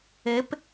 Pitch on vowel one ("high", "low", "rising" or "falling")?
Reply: rising